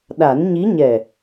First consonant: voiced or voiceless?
voiced